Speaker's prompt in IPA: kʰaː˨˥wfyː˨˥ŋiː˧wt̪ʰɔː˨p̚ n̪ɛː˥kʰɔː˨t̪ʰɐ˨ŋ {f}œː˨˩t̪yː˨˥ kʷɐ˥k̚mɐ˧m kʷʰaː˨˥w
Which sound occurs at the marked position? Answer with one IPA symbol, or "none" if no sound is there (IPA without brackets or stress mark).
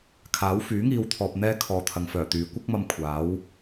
f